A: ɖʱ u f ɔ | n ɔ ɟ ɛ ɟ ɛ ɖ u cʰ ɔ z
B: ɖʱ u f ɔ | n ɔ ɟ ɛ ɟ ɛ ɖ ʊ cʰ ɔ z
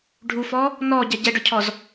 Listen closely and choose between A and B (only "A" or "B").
B